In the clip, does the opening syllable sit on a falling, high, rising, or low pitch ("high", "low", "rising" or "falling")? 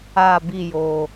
falling